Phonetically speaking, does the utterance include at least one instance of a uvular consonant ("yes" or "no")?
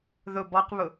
yes